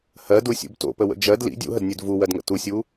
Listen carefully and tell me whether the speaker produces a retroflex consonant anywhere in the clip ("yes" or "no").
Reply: no